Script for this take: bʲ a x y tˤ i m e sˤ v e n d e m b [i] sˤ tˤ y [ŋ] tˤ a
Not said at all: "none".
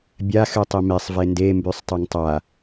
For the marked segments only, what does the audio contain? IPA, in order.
y, ŋ

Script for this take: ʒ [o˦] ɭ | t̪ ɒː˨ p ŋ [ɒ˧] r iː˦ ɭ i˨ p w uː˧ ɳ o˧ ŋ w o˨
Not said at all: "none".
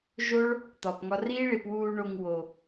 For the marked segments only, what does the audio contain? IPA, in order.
o˦, ɒ˧

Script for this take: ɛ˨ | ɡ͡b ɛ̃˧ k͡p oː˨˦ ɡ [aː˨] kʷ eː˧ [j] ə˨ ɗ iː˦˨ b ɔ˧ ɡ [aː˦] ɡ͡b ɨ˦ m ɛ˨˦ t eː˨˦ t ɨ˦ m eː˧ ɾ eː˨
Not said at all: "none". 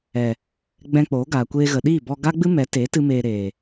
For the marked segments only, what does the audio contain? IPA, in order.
aː˨, ɣ, a˦

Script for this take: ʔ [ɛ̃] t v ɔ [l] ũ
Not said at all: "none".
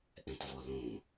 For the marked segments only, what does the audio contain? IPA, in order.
ɛ̃, l

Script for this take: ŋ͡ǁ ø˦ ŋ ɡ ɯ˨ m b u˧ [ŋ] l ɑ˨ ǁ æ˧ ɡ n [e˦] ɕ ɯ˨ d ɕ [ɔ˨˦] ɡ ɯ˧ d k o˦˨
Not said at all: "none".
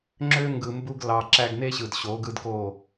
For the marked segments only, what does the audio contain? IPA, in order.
ɡ, e˦, o˨˦

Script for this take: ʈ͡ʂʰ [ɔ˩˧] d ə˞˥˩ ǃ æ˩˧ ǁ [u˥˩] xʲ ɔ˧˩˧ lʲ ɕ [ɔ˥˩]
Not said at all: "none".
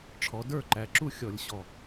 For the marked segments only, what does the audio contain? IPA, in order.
ɔ˩˧, u˥˩, ɔ˨˩

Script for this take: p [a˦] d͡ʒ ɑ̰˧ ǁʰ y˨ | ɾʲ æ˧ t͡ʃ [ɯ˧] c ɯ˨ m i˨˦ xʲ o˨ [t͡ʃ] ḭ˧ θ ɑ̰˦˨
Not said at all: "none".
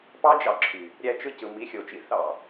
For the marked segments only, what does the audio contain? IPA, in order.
ɑ˦, ɯ˧, t͡ʃ

